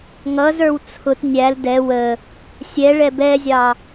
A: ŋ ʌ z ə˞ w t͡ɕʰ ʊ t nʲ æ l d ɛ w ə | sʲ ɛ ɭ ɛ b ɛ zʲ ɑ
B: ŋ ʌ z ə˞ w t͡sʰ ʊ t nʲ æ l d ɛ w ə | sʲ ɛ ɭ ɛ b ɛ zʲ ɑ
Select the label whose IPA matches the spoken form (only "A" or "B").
B